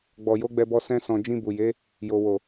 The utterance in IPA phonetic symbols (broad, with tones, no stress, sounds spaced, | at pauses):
ɡ͡b ɔ˨ j o˨˦ ɡ͡b ɛ˧ b ɔ˧ s ɛ̃˧ s ɔ̃˨ d͡ʒ ĩ˧ b u˨ j e˨˦ | j o˨ w o˨